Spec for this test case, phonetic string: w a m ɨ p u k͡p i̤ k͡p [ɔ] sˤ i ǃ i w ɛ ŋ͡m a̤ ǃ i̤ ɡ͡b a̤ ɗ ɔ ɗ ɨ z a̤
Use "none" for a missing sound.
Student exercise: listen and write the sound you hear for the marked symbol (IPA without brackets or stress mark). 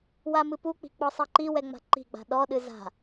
ɔ